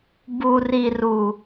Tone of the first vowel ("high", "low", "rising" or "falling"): low